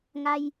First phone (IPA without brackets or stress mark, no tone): ŋ